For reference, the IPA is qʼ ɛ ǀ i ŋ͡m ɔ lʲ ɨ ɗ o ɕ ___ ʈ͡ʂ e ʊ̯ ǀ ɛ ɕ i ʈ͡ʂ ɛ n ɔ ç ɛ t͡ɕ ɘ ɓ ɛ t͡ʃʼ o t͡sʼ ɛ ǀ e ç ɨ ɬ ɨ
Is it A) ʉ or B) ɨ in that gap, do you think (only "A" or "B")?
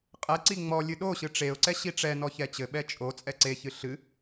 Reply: B